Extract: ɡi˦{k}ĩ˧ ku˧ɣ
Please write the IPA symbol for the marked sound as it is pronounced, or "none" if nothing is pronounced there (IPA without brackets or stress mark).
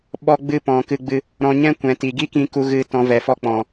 k